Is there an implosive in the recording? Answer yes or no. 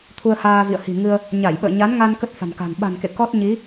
yes